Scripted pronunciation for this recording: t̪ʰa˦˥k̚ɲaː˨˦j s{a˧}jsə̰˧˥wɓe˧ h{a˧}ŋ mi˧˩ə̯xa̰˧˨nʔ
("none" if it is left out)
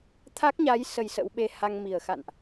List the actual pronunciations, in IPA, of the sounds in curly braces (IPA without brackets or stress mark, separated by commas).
ə˧, a˧